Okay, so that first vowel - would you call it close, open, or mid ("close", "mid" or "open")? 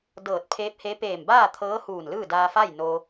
mid